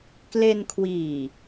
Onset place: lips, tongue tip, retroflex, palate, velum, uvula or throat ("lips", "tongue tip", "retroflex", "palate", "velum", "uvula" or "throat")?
velum